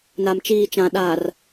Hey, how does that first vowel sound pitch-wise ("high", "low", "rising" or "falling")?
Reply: low